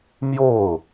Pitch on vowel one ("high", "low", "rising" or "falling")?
falling